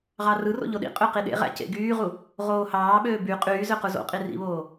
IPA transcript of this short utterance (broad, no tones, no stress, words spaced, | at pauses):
ʁɑrɯro̰ ʎoɗḭqʼø qiɗḛʁæ̰ cḛɡyːʁu | ʁoːhɑːɓøː by qʼyːzø quzo̰qʼi rḭβoː